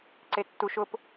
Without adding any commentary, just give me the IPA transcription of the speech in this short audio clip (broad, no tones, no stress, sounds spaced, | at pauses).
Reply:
ǀ e tː u ʃ ʊ p